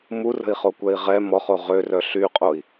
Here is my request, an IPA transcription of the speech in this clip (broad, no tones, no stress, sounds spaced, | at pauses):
m u r ə̤ i̯ χ o kʷ ɛ i̯ ʁ ɛ m ɔ χ o ʁ ø r œ ɬ y qʼ o i̯